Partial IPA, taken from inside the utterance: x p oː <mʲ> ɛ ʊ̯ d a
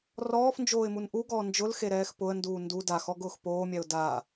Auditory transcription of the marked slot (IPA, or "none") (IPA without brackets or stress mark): mʲ